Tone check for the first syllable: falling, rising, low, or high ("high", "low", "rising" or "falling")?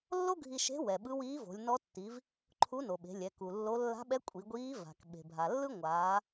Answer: high